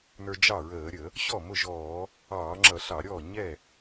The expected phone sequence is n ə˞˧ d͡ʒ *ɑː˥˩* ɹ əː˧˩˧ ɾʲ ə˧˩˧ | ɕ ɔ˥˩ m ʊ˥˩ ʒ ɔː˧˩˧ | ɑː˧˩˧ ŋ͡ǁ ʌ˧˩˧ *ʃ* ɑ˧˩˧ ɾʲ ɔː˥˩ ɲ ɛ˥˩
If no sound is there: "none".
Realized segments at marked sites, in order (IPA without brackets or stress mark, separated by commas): ɑ˥˩, ɬ